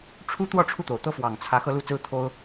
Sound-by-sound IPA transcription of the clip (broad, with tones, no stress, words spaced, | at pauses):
ʈ͡ʂʰu˥t̪wɔ˥˧ ʈ͡ʂʰu˥˩t̪o˨˩ʊ̯ t̪ɤ˥fwɑ˨˩ŋt͡sʰä˧˥ xɤ˥lu˥t͡sɹ̩˥ t̪ʰo˥ʊ̯